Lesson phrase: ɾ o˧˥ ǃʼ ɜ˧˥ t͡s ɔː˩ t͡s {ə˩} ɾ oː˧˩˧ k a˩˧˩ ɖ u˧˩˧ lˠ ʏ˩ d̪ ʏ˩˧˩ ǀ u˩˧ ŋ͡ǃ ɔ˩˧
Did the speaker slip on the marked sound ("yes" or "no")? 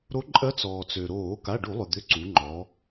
yes